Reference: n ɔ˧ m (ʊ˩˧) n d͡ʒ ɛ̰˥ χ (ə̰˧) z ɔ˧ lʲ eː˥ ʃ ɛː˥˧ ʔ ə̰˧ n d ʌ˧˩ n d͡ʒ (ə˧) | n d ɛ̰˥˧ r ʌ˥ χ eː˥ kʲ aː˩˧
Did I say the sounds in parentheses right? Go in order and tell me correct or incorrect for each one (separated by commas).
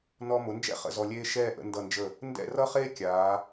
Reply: correct, correct, incorrect